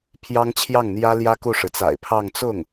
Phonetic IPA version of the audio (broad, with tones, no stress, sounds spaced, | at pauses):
pʰ j ɑ˥ ŋ t͡ɕʰ j ɑ˥˩ ŋ n̪ j ä˥ l j ä˥ k u˥˩ ʂ ɻ̩˩ t͡s a̰˨˩ ɪ̯ pʰ ɑ˥˧ ŋ t͡s ʊ˥˩ ŋ